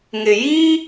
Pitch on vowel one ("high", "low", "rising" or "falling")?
low